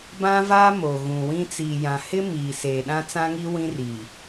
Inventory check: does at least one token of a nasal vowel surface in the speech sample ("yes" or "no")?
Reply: yes